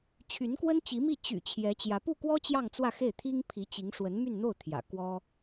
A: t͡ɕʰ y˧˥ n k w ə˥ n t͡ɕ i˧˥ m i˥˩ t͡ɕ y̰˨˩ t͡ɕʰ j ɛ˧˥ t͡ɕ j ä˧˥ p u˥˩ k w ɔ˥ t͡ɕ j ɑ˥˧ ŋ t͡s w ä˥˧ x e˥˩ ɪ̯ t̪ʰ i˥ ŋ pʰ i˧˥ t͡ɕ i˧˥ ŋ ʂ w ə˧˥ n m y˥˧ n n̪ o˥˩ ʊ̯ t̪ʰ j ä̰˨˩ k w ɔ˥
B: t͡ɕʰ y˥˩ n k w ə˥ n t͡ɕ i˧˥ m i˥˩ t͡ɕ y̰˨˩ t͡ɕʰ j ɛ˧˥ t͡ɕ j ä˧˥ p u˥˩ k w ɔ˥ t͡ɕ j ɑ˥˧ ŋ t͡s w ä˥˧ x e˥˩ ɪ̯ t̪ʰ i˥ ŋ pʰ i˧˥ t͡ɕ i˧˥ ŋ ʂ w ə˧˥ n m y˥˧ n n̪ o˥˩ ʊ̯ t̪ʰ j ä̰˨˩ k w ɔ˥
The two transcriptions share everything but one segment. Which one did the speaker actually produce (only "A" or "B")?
A